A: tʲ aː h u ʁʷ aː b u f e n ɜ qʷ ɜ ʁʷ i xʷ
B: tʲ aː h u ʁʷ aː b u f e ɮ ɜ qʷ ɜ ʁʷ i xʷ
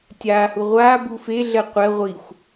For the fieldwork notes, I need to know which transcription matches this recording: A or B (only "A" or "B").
B